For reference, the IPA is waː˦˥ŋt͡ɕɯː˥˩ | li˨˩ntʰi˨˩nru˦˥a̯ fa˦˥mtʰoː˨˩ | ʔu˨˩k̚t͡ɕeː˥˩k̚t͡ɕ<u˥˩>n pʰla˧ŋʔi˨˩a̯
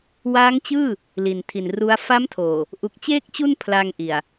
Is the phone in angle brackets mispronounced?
no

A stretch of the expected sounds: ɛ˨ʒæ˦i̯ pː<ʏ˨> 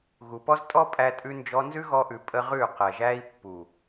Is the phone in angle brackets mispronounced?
yes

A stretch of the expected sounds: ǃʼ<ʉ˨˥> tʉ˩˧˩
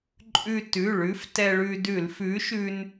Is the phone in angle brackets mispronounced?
yes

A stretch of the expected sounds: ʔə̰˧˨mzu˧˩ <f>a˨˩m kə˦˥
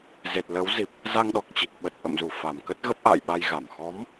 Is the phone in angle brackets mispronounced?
no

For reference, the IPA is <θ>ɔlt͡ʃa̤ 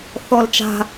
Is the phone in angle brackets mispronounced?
no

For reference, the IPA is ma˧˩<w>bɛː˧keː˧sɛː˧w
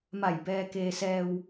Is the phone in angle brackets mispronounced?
yes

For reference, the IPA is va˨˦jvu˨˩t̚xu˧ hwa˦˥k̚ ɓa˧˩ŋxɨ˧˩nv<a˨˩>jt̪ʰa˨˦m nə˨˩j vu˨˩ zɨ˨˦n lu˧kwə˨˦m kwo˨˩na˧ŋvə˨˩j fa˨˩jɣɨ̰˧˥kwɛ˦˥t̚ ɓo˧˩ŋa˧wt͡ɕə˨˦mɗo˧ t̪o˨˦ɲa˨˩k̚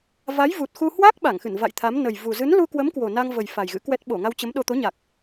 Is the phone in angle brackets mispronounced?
yes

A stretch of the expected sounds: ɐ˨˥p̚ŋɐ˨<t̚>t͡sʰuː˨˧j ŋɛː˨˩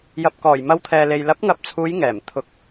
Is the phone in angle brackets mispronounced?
yes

